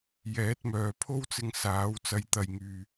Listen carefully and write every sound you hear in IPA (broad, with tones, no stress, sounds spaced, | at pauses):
j ɛː˨˥ t̚ m œː˨ pʰ o˥ w t͡s ɪ˧ ŋ s aː˨˥ w t͡s ɐ˨˧ j t̪ ɐ˨ j ŋ yː˨